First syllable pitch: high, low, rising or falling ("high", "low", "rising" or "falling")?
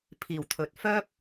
low